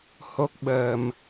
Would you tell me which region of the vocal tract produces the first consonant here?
throat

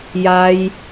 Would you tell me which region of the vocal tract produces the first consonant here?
palate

